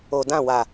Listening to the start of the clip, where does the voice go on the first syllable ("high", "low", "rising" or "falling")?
low